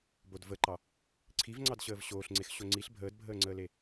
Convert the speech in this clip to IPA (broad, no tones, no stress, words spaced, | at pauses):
bodvəǃɑ | ǀʰivŋ͡ǀɑdɕəːv ɕoːɬŋ͡ǀex ɕoŋ͡ǀiɬ bʱəːdbʱəːŋ͡ǀəːle